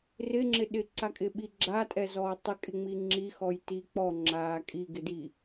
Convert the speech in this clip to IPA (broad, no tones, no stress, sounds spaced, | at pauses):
r ɪ ŋ͡ǁ ɪ ɗ ɪ ǀ a kʼ ɪ ɓ i ɡ͡ǁ a tʼ ɛ z ɔː tˤ ɪ kʼ ɪ ŋ͡m i ŋ͡ǁ i x ɔ j t i k͡p ɔ ŋ͡ǁ aː kʼ i ɡ ɪ d i